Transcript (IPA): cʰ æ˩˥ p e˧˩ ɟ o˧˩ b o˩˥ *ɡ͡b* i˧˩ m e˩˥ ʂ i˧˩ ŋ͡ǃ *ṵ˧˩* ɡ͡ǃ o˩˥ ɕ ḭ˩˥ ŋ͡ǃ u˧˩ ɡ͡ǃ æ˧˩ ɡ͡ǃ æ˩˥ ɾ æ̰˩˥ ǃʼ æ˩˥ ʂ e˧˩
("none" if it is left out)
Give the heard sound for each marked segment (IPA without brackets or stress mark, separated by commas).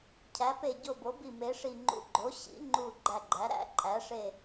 b, ṵ˧˩